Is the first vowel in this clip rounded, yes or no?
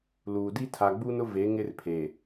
yes